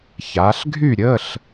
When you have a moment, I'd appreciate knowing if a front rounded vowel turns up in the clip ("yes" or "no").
yes